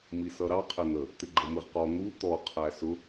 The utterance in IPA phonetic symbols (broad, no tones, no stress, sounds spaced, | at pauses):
m i s ʌ ɾ ɑ qʰ ɪ n̪ ə | t̪ ɪ ɡ͡ǃ ə m ɪ ʁ q ɔ n̪ u t̪ ɔ qʰ æ s ʊ